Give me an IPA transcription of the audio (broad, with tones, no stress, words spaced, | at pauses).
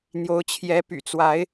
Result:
n̪jo˨˦ʊ̯ t͡ɕʰjɛ˨˦py̰˨˩t͡swa˨˦ɪ̯